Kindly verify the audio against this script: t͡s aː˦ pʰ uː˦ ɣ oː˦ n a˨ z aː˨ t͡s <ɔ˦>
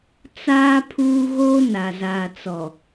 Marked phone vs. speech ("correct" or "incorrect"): incorrect